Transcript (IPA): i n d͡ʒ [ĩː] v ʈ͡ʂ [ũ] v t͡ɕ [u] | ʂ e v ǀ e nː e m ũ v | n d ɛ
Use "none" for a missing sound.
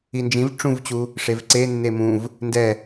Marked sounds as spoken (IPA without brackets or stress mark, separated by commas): ĩ, ũ, u